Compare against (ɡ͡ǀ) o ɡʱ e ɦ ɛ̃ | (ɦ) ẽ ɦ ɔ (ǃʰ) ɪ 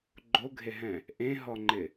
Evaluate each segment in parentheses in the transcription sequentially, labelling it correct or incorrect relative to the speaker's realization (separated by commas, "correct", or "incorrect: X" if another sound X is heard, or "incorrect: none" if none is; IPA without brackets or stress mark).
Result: incorrect: ɡ͡ǃ, incorrect: ʔ, incorrect: ŋ͡ǃ